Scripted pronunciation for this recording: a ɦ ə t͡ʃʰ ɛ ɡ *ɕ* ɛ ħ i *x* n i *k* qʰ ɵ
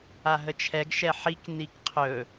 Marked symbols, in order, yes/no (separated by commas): no, no, yes